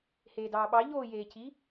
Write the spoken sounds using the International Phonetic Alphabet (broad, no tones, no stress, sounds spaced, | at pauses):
h eː d ɑː ɓ ɑ ʎ oː j eː cʰ i